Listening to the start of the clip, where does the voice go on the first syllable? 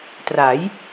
rising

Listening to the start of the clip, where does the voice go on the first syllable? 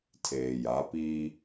low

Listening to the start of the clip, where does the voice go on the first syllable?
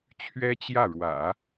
high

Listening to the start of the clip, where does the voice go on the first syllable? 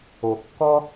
low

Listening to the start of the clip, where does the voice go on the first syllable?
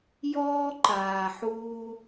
high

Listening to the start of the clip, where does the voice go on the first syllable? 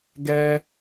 high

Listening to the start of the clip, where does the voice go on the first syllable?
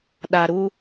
low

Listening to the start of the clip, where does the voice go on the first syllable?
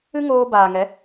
high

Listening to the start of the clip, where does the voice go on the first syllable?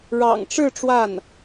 low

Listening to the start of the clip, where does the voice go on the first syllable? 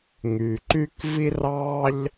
low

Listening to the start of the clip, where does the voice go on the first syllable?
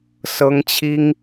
high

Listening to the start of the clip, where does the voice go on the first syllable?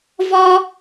high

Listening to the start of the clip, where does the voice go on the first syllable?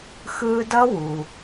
high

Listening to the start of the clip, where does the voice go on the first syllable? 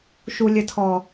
low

